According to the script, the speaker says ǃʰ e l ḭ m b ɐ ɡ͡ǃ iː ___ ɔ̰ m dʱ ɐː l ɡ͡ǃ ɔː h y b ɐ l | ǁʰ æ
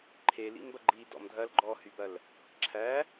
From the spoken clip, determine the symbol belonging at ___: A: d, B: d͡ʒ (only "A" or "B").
A